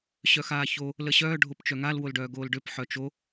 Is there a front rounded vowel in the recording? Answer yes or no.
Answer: yes